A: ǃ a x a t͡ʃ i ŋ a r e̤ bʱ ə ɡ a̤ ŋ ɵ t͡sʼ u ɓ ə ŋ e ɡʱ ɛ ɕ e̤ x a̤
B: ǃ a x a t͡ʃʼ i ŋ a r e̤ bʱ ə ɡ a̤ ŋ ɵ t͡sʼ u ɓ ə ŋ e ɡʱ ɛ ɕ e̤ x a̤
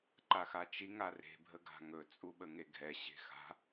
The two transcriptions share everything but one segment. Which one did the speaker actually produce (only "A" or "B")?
A